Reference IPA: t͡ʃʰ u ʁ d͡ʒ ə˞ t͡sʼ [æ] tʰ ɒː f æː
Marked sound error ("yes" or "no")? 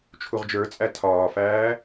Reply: no